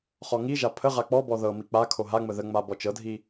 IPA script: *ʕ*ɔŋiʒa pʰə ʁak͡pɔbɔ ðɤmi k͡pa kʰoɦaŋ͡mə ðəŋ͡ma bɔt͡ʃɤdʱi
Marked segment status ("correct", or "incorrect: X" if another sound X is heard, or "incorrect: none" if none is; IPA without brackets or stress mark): incorrect: χ